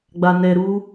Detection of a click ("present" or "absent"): absent